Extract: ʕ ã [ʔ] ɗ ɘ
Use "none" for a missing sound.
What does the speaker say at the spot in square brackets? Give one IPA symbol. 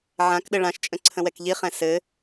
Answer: k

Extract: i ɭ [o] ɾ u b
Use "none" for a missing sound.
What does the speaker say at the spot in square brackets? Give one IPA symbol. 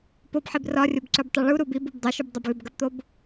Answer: u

